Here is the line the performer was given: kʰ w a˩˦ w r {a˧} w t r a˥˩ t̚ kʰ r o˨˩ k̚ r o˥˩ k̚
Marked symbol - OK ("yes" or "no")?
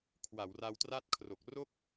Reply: yes